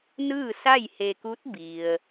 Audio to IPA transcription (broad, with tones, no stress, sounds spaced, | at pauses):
n ɯː˥˨ s a˥˨ j h e˧ k u˧˥ t̚ b i˩ ə̯